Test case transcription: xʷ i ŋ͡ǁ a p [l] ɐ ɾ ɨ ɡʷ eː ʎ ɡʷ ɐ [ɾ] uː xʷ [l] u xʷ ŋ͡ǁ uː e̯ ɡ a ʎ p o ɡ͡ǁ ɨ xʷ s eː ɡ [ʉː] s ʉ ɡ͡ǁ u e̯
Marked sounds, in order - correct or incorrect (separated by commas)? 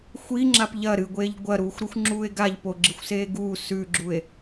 incorrect, correct, incorrect, incorrect